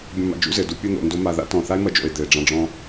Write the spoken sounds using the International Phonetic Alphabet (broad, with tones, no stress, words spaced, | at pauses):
bʲɔ̃˧ma̰˧d͡ʒṵ˦zɘ˨ du˧pʲɘ˦˨n̪o̰˨ ndo˦ma˧ ða̰˦tɔ̃˨ θa˦e̯mɐ˧d͡ʒo̰˨e̯ d̪ɘ˨e̯ɖ͡ʐã˧ɖ͡ʐɔ̃˧